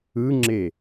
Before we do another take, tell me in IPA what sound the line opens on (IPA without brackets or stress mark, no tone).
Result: ɯ